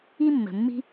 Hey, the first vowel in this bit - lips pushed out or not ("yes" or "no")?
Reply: no